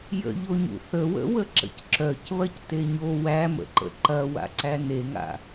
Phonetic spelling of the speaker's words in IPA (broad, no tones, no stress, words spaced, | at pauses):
jə̰ʎoɲṵ θəwə̰wə ǁə̰cǁœcβɐc teɲo wæmə̰ǃə̰ ǃɐwa̰ ǀæneŋa̰